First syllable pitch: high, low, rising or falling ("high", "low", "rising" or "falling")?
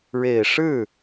low